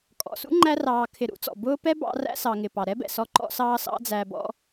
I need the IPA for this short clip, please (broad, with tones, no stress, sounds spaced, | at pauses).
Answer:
kʼ ɔ̰˨ s ṵ˥ ŋ͡ǃ æ˦ r ɑː˨ kʰ ɪ˨ ɾ ṵ˦ t͡s ɔ̰˩ b ʊː˥ p ɛ˦ b ɑ̰˦ r æ̰˥ s ɑ˨ ŋ ɪ˩ p ɑ˩ ɾ ɛ˦ b ɛ̰˩ s ɔ˨ ǃ ɔ̰˨ s ɑː˨ s ɑ̰˨ d͡z æ˨ b ɔ̰˦